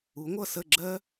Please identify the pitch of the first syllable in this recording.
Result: rising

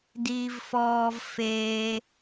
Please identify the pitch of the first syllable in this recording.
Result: low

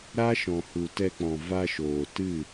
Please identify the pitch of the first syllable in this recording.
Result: high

